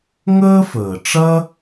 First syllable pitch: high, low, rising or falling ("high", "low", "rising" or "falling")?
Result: high